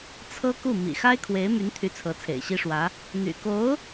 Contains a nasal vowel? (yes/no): no